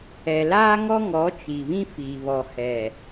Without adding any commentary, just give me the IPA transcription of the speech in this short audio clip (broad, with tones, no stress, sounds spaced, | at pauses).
ɛ˨ l aː˦ ŋ ɔ˦ ŋ ɔ˨˦ t͡ʃ i˨ β ĩ˦ f iː˨ β ɔ˨ h ɛ˨